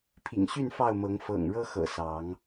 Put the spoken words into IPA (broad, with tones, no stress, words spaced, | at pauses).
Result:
pʰḭ˨˩ŋɕy˥˨n fɑ˥˨ʊ̯mɤ˨˦ŋ fɤ̰˨˩ŋɻɤ˦xɤ̰˨˩ sɑ˨˦ŋ